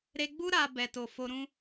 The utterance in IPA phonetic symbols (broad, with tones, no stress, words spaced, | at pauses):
ɾe˧ɡ͡bu˦ ɾa˧ bɛ˨to˨fo˧ɾũ˦